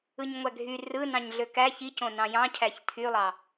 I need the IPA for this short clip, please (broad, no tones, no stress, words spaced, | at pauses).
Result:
ɯɲŋʷæɡʱy rɯnɑ̃ɲ ɮøkæ çicõnɑ̃ jɑ̃cʰæç tʰylˠɑ